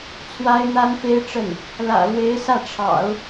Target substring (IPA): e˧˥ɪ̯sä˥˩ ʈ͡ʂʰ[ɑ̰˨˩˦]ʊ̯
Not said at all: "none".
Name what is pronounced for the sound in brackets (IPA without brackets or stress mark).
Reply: ɑ̰˨˩˦